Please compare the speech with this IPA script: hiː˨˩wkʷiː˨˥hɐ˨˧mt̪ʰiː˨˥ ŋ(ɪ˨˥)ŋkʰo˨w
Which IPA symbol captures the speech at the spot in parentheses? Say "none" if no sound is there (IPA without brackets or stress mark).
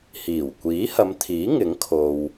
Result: ɪ˨˥